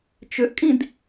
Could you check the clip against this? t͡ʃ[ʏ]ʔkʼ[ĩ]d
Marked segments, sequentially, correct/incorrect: correct, correct

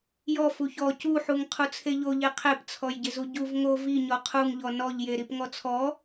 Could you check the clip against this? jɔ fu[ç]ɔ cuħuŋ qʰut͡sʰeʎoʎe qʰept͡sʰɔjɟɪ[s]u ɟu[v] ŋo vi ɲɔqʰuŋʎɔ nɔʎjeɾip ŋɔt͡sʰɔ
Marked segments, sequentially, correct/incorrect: correct, incorrect: z, correct

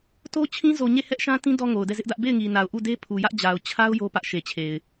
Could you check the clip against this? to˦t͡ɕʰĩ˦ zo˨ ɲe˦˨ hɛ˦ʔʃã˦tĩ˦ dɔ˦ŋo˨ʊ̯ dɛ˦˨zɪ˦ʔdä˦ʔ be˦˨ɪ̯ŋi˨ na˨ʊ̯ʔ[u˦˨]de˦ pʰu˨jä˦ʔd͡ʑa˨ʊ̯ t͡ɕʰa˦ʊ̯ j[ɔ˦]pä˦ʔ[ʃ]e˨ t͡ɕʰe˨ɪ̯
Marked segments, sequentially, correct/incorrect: correct, incorrect: o˦, correct

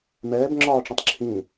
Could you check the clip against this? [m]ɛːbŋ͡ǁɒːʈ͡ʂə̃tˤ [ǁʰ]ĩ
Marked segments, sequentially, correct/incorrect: correct, correct

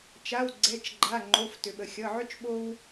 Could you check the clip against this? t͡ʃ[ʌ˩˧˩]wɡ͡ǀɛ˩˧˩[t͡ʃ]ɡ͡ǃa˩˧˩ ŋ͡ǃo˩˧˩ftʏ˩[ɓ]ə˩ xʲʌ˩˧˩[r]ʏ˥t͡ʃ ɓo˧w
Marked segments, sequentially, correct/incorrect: incorrect: a˩˧˩, correct, correct, incorrect: ʕ

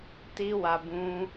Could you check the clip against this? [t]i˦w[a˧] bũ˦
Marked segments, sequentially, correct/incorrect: correct, correct

